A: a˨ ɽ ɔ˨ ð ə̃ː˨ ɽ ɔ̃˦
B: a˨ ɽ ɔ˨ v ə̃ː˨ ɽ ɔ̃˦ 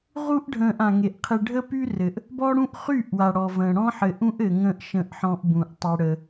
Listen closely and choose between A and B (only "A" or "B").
B